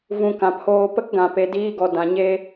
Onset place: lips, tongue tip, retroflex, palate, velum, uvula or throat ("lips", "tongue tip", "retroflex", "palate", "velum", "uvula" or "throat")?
lips